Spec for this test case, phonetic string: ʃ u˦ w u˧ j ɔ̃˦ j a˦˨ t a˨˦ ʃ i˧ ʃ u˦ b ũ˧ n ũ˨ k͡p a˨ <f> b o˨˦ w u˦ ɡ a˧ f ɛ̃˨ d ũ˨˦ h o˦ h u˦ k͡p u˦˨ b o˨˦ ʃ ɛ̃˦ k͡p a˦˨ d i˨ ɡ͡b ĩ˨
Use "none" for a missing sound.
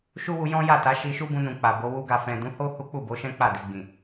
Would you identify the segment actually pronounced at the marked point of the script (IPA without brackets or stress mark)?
none